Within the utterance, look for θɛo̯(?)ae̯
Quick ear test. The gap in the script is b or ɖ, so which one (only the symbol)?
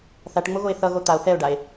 ɖ